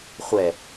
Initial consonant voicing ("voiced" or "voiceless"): voiceless